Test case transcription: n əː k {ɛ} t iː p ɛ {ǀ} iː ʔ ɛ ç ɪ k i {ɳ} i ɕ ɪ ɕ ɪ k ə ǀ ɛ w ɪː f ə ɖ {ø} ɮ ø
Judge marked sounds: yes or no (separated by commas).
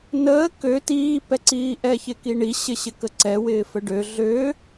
no, yes, yes, yes